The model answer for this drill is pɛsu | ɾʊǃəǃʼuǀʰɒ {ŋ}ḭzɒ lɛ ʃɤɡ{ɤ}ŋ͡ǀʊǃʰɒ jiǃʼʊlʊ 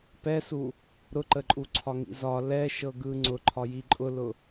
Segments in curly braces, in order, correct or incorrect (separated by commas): correct, incorrect